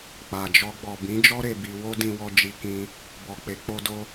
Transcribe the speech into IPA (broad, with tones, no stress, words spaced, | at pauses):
k͡pa˨d͡ʒɔ˧ ɡ͡bɔ˨bĩ˨˦d͡ʒɔ˦ ɾe˧bi˧ wo˦dĩ˧wɔ˧ d͡ʒi˧kĩ˧ | bɔ˨k͡pe˨˦k͡po˧do˧